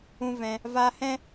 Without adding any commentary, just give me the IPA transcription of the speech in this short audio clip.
ũ˦ v ɛ̃˧ | v a˧ h ɛ̃˦

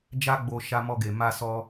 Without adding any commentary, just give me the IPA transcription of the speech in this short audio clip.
d͡ʒ a˦ ɡ͡b o˧ ʃ a˧ m ɔ˧ ɡ e˨ m a˧ s ɔ˧

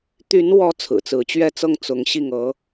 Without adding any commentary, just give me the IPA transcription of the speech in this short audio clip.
t̪ y˧˥ n w ɔ˧˥ t͡sʰ ɹ̩˨˩ t͡s ɹ̩˧˥ t͡ɕ ɥ ɛ˥˧ t͡s ɤ˥˩ ŋ t͡s ʊ˧˥ ŋ ɕ i˥˩ ŋ ɤ˧˥

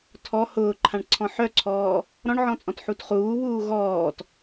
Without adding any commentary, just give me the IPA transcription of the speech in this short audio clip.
tʰ ɔ h ʊː ǃʰ ã ɳ ǀʰ ɔ̃ ħ œ ǀʰ ɔː | ɾ ɔ̃ ɳ ʕ ɔ̃ t͡sʼ ɔ̃ t ħ u t χ uː β uː ɣ ɔː t

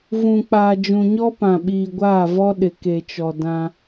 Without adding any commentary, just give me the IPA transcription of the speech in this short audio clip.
v ũ˨ k͡p aː˨ d͡ʒ ũ˨ ɲ ɔ˦ p ã˨ ɓ iː˨ ɡʷ aː˦˨ v ɔ˦ ɗ ɪ˨ k e˨ t͡ʃ ɔ˨ d ã˦

